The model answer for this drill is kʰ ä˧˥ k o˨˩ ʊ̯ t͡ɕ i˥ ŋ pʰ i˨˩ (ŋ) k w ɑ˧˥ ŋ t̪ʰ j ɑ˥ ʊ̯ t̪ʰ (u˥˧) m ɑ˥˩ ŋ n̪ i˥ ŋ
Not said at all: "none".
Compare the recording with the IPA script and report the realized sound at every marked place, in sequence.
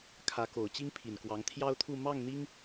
n, u˥˧

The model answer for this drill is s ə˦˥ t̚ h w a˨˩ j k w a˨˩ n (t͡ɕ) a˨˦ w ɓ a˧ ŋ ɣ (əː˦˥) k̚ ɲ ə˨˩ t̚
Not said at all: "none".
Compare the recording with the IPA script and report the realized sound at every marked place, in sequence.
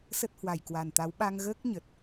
t̪, əː˦˥

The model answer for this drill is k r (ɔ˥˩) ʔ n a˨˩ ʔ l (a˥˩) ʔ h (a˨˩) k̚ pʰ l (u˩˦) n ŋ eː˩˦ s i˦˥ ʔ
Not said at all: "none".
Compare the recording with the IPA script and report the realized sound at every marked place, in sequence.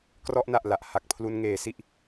ɔ˥˩, a˨˩, a˨˩, u˧

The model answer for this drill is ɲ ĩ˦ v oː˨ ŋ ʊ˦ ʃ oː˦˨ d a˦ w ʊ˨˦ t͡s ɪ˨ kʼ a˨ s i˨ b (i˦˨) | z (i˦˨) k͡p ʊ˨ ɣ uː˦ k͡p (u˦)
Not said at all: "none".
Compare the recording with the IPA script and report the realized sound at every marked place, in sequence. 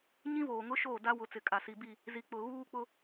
i˦˨, i˨, ʊ˦

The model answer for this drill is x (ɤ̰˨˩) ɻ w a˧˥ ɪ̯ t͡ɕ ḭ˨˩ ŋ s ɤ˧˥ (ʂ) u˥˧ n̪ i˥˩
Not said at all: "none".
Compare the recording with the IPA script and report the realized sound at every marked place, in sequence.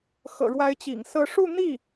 ɤ̰˨˩, ʂ

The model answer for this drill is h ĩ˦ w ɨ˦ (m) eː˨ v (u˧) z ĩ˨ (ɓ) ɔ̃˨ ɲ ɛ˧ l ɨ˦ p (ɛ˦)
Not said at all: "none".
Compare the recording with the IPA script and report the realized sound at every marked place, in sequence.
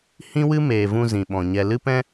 m, ũ˧, ɓ, ɛ̃˦

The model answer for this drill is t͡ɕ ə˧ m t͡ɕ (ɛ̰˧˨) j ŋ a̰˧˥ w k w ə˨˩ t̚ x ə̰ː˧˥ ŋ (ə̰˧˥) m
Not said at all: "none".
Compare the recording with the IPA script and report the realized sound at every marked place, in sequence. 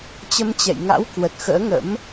ɛ̰˧˨, ə̰˧˥

